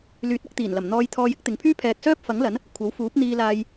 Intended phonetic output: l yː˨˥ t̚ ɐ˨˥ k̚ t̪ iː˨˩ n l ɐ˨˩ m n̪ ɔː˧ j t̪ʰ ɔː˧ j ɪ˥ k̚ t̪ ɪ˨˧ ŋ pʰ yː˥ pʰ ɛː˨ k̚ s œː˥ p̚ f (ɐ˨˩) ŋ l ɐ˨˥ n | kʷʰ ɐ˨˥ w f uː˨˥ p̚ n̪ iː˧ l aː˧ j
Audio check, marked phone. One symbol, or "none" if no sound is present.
ɐ˨˥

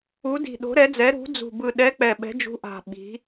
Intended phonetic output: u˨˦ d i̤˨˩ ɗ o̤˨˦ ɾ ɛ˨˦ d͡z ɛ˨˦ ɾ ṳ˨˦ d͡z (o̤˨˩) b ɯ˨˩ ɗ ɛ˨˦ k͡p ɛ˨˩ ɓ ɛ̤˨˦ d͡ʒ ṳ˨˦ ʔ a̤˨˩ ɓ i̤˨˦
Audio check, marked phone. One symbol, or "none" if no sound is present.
ṳ˨˩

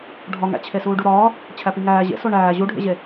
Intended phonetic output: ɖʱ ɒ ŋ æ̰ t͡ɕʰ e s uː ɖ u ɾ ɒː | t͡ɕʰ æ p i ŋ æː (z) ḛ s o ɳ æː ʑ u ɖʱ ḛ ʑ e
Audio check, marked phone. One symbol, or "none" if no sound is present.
ʑ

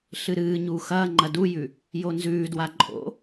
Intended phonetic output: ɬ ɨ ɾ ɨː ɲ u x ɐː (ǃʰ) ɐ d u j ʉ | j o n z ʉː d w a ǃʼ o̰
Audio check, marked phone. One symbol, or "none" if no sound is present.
ŋ͡ǃ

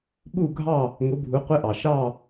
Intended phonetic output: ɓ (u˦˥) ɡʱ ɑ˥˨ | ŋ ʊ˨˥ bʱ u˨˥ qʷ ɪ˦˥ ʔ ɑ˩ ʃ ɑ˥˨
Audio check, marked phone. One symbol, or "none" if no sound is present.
u˥˨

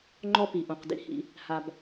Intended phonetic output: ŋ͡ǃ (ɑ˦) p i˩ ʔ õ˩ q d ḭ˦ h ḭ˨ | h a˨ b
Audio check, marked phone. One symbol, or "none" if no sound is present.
ɔ˦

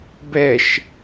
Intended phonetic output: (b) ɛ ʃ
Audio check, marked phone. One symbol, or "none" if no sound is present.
b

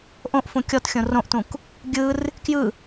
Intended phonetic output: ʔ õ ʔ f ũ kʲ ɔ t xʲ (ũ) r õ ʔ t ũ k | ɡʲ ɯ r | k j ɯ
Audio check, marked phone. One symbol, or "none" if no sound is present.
õ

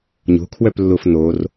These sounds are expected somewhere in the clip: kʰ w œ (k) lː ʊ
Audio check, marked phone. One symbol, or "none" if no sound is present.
p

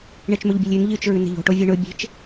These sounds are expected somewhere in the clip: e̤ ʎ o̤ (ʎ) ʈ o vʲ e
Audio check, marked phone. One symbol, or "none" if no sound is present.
none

